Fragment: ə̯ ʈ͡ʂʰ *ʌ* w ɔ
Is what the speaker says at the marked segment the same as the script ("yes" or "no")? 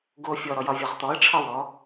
no